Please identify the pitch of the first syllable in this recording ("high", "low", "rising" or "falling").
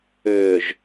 low